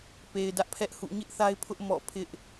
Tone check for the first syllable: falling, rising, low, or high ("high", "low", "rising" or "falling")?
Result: low